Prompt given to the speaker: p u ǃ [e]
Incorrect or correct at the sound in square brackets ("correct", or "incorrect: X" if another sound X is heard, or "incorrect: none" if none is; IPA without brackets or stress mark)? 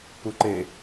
correct